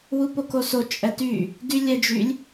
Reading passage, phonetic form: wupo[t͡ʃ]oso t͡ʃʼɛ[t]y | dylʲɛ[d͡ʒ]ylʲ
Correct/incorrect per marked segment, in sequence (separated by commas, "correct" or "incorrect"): incorrect, correct, correct